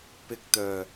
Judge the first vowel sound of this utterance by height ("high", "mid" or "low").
high